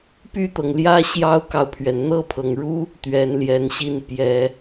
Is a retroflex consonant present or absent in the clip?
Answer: present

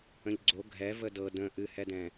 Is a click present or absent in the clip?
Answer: present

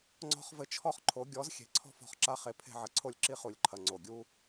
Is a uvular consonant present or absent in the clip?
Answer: present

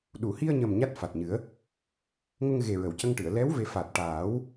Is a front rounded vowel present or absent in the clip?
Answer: absent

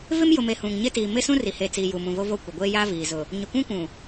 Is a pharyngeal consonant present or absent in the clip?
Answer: absent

